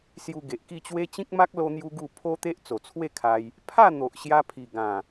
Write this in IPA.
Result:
s j u˧ ɡ e˨ ʔ k i˥˧ t͡ɕ w e˦ t͡ɕ ĩ˦ k̚ m a˦ k̚ l o˦ n̪ j u˦ ɡ u˥˧ pʰ o˦ t̪ e˦ ʔ t͡s o˨˩ t͡sʰ w e˥˧ kʰ a˧ j | pʰ a˥˧ n̪ o˨ ʔ ɕ j a˧ pʰ i˨˩ ɡ ã˨˩

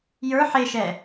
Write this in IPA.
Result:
j ə˞ ħ e ʃ ɛ

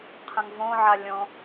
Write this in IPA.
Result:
qʰ ə̃ ŋ v õ ʕ a lʲ õ

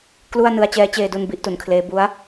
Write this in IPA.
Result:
k l u˥˩ a̯ n ɯ˧ a̯ t͡ɕ ɛː˦˥ t͡ɕ eː˧ d u˧ n b i˥˩ ʔ t u˩˦ n kʰ l eː˦˥ b u˦˥ a̯

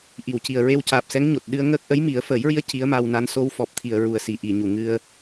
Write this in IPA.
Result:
ʔ i˨˩˨ w c i˨˩ ə̯ ɹ e˧ w c aː˨˩ p̚ s ɛ˧˥ ŋ ɲ o˨˩ t̚ ɗ ɨ˧ ə̯ ŋ əː˦˥ k̚ ʔ ə˧˥ j m i˨˩˦ ə̯ f əː˨˩˦ j ɹ i˧˥ ə̯ c i˧˥ ə̯ m a˧ w n a˧˥ n s o˧ w f ɔ˨˩ p̚ t̪ʰ i˨˩˨ ə̯ ɹ u˨˩ ə̯ s i˨˩ ʔ i˨˩˨ ɲ u˨˩˨ ŋ ɨ˧ ə̯

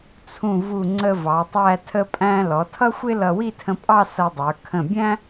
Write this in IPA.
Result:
t͡sʰ ũ˧˩ v u˧˩ ŋ͡ǀ ə˧ v ɑ˩˧ tˤ æ˥˧ tʰ ə˥ pʼ æ̃˥ l ɔ˩˧ tʰ ʌ˥ xʷ ɪ˥ l ʌ˧ w i˥˧ tʰ ə̃˧ pʼ ɑ˥˧ s ʌ˧ dˤ ə˞˩˧ kʰ ə̃˧˩ bʲ æ̃˥

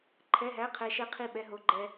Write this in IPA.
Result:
ǃʰ ɛ˧˥˧ ɦ æ˧˥˧ qʰ ɛ˧ ʃ ɛ˥˧ qʰ i˥˧ ɓ ɛ˧˥˧ ɦ o˧˥˧ ɡ͡ǃ ɛ˧

